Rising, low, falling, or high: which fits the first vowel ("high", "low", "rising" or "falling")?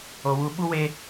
low